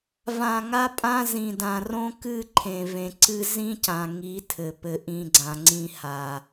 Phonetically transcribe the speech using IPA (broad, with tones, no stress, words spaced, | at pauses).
vã˧ŋa˦pʼã˦ zĩ˨dã˨ rõ˦kɨ˦˨ ǃʰẽ˨vẽ˨ǀɨ˧ zĩ˦cã˨ ŋi˨˦tʰɘ˨ pɘ˧ʔĩ˧ɡ͡ǀã˨ŋ͡ǀĩ˧ ha˨